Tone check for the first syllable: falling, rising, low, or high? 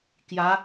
rising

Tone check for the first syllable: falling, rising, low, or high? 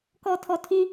low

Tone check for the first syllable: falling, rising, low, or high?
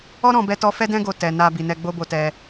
high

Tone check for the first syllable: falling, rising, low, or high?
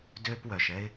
high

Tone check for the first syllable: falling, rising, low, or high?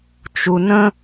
low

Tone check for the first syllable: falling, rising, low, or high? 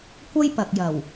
high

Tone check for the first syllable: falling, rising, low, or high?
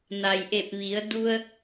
low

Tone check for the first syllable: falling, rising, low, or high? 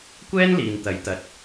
high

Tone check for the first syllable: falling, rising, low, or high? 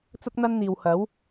high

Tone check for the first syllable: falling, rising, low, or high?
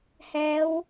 rising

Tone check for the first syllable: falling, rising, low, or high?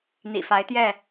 low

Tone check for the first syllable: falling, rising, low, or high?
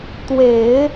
low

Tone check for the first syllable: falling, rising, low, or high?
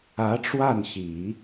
rising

